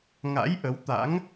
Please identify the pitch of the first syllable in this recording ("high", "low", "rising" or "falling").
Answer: rising